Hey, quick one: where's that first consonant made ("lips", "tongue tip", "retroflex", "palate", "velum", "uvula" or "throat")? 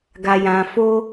velum